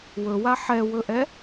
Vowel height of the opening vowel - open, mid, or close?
mid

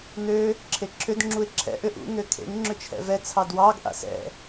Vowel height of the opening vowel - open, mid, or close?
mid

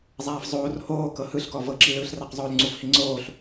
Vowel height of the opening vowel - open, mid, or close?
open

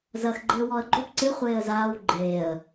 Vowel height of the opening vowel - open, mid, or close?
open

